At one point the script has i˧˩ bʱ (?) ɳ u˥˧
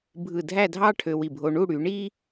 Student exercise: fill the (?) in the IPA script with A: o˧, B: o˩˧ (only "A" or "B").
A